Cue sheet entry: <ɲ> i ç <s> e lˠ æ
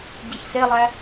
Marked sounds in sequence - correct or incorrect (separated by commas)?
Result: incorrect, correct